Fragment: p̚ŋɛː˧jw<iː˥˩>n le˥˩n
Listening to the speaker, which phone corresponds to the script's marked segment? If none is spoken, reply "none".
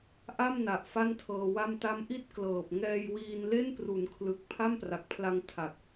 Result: iː˧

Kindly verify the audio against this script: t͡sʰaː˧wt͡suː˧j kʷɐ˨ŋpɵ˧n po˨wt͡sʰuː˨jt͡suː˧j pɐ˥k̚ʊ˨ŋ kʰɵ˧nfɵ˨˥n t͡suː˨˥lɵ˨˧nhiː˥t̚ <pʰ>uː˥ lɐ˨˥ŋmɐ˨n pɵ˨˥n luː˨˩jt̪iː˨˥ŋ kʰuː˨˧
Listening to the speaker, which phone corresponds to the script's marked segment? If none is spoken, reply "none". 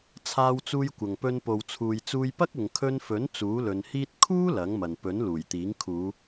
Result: kʰ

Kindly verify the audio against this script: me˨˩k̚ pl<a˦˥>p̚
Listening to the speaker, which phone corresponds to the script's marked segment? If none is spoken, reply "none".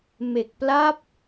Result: a˦˥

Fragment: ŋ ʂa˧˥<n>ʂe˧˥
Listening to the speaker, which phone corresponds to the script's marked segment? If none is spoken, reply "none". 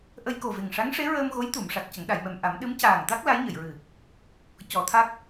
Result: ŋ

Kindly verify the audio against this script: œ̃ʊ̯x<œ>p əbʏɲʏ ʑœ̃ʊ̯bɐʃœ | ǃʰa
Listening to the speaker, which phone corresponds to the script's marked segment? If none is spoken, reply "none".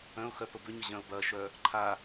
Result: œ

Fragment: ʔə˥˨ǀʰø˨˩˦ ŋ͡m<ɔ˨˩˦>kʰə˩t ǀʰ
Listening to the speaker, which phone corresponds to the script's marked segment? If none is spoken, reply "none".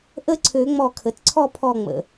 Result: ɔ˧˩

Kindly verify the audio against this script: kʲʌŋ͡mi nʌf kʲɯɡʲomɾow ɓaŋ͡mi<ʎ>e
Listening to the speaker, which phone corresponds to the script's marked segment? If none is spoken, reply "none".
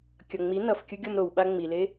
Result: l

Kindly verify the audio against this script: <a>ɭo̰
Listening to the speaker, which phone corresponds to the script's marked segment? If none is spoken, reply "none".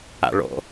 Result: a̰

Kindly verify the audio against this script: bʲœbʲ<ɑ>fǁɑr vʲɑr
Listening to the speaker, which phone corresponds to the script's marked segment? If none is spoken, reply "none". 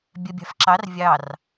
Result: ɑ̤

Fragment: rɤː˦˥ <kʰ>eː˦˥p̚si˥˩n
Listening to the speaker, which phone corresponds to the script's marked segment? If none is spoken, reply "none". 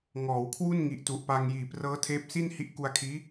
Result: tʰ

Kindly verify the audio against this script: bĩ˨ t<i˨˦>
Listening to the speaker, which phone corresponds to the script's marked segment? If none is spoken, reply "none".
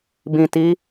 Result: i˨˦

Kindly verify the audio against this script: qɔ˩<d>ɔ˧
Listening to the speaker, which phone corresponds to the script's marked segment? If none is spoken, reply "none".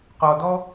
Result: d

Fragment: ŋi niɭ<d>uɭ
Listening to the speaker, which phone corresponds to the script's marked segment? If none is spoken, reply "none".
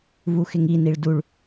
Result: d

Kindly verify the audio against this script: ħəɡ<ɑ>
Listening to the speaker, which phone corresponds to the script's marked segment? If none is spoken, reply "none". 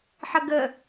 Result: ə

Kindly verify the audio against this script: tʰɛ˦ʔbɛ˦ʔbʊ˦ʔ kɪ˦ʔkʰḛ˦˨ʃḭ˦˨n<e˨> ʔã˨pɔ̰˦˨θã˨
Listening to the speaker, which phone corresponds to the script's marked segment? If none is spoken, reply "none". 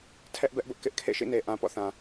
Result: e˨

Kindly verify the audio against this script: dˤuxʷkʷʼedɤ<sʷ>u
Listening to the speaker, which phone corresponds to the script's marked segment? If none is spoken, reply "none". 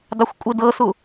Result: s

